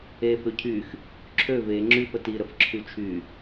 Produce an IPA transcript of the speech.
e f ø cʰ y x | ǁʰ ø v e ŋ͡ǁ y f ə t i ɾ ə f ǁʰ y t͡ʃʰ y

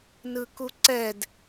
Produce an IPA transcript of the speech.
n ɯ k u ǀ ɛ d

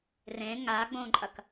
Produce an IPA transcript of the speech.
r ẽ ŋ a ɡ͡b õ ǃʼ ɐ k

